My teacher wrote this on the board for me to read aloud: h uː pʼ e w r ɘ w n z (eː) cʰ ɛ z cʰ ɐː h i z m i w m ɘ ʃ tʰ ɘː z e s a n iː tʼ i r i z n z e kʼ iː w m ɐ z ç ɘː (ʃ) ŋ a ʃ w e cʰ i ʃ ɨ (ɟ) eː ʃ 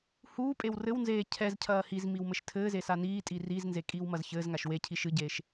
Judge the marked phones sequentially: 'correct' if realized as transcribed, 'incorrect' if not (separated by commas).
correct, incorrect, correct